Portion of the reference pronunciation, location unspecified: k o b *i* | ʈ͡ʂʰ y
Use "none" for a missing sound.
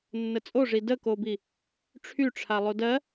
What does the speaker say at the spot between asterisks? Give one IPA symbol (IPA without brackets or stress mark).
i